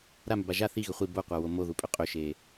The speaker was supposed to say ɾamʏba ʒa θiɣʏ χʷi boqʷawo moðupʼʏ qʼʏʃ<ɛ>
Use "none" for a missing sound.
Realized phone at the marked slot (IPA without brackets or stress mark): e